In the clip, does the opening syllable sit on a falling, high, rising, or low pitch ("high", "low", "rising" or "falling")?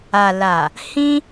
low